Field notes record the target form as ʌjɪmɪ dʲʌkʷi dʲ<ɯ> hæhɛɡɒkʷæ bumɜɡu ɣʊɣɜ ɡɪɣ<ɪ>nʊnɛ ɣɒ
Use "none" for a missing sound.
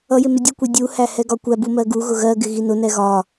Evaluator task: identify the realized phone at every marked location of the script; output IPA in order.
u, i

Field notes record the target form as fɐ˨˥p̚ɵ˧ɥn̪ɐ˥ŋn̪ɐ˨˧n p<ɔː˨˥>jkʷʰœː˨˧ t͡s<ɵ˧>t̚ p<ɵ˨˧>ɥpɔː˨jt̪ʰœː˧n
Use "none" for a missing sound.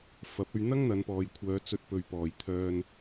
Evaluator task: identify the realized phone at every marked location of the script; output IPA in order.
ɔː˨, ɵ˧, ɵ˨

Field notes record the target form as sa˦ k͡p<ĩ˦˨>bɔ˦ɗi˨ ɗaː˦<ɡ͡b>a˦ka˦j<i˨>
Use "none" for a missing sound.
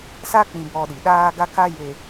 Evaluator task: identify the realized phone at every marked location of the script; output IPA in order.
ĩ˦, ɡ, e˨

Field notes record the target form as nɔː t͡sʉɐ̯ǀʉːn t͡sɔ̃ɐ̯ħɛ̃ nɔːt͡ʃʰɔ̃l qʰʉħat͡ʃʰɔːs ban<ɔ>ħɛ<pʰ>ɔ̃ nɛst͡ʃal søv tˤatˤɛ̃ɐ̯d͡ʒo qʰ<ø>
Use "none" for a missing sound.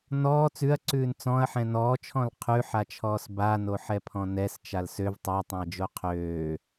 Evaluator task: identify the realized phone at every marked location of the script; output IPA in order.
o, pʰ, øː

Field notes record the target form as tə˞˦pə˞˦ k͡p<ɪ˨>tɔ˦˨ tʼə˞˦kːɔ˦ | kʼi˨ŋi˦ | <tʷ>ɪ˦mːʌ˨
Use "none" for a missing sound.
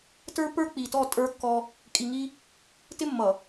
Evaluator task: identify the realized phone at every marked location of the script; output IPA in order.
i˨, t

